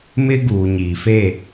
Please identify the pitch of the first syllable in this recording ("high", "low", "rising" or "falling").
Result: high